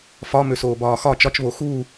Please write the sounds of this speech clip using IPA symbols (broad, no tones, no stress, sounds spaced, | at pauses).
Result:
f ɒ m ø s oː b ɒː x ɒ t͡ʃ ɒ t͡ʃ β o x u